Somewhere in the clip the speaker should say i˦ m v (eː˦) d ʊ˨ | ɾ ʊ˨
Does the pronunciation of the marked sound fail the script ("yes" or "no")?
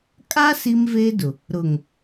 no